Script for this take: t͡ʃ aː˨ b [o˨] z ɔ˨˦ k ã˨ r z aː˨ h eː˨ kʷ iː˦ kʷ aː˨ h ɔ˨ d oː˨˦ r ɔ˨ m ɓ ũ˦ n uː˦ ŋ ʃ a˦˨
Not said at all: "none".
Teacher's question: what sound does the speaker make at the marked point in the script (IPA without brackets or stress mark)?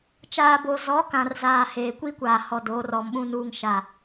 o˨